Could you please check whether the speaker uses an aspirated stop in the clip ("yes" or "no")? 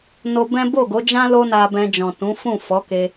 no